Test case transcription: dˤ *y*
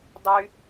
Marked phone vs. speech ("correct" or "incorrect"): correct